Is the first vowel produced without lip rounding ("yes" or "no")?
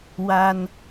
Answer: yes